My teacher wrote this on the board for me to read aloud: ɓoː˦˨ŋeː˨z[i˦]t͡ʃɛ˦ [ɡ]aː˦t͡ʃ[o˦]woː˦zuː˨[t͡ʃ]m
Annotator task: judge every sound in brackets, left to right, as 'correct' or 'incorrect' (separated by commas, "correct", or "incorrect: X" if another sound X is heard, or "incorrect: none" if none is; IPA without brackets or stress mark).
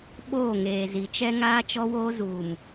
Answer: incorrect: i˨, incorrect: ŋ, incorrect: ɔ˦, incorrect: none